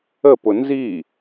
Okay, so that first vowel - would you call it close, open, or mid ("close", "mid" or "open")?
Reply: mid